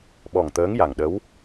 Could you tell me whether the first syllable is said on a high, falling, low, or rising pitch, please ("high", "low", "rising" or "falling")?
low